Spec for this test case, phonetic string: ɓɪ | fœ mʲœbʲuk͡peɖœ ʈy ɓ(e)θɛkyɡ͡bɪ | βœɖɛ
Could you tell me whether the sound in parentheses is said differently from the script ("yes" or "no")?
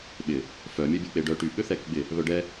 yes